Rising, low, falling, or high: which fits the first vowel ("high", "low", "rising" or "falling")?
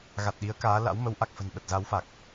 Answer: low